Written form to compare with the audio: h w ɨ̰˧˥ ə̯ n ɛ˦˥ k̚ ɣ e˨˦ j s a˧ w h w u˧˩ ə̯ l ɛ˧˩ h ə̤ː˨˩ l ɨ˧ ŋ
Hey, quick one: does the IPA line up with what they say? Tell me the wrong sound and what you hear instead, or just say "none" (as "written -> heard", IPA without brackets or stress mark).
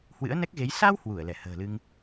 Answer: none